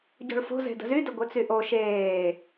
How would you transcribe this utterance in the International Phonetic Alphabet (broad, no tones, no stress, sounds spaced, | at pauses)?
ɟ o̤ ɭ f o̤ z e̤ d ə̤ z y d ə ɡʷ e t͡s y ʔ o ʃ eː